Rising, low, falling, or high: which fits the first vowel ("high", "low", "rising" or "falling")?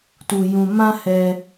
low